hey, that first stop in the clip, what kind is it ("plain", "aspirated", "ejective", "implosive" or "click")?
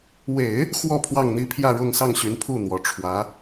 aspirated